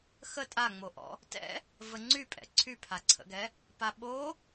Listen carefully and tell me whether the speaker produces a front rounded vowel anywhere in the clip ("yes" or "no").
yes